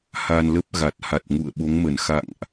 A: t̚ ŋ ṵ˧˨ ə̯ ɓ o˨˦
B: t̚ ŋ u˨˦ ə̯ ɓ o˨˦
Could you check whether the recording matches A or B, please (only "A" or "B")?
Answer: A